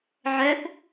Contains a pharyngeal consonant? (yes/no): yes